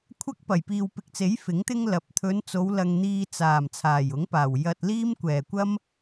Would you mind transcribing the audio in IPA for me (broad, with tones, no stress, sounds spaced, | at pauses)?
kʷʰ ɐ˥ k̚ p ɐ˨˩ j p iː˨ w p ɪ˨ k̚ t͡s e˨˥ j f ɪ˨˥ ŋ t̪ ɪ˥ ŋ l ɐ˨˥ p̚ t̪ʰ ɵ˨˧ n t͡s o˨˧ w l ɐ˧ ŋ n̪ iː˧ t͡s aː˨˩ m t͡sʰ aː˨˩ j ʊ˨˥ ŋ p aː˨˩ w j ɐ˨ t̚ l iː˥ m kʷ ɛː˨˩ kʷ ɐ˥ m